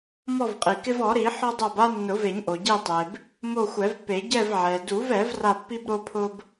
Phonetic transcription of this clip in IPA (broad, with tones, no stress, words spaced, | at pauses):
mɔ˦˨vqʼi˩ kɪ˦vɔ˨˩˦ɾi˨˩˦ ħɔ˦dˤa˦˨ba˦ nːʊ˨˩˦ve˨˩˦ɲʔo˩ ɟi˦˨tˤe˩b | mo˦˨xʷɛ˨˩˦vpːe˨˩˦ ɟɛ˦˨vʕɛ˩du˨˩˦v ɛ˨˩˦v ra˦˨pːi˦b ɾo˦pʰʊ˦b